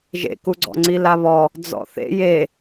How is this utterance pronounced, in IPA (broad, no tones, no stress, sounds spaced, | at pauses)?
ʒ ḛ k u ɡ͡ǀ ɔ̰ ŋ͡ǀ i l a β ɔ | d͡z ɔ̰ θ ḛ j e